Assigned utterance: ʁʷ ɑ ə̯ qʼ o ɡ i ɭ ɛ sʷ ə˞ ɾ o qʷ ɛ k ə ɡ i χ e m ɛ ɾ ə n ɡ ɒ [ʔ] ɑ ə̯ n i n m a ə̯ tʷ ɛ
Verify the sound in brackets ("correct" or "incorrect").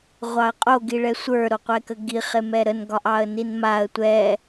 correct